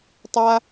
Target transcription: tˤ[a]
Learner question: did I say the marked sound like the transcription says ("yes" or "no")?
yes